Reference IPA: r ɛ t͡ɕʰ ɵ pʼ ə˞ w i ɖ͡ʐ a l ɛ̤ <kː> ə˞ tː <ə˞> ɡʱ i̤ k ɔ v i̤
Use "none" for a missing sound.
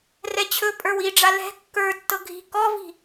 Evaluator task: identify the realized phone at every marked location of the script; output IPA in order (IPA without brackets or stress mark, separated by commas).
kː, ɤ